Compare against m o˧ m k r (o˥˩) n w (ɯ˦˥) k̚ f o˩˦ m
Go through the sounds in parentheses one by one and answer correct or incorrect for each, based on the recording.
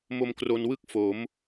incorrect, incorrect

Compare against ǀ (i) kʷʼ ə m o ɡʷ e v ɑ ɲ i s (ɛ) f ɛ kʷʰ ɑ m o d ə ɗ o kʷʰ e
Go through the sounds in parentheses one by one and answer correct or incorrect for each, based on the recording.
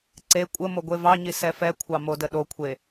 incorrect, correct

